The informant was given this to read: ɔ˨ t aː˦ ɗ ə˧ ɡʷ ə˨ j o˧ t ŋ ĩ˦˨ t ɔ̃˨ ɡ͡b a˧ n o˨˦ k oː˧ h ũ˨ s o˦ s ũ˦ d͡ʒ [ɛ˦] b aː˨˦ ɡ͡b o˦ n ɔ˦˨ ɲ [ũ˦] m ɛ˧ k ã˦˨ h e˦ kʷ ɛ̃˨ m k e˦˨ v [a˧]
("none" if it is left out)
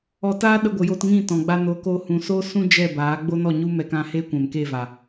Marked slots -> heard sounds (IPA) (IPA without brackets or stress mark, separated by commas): ɛ˦˨, u˦, a˨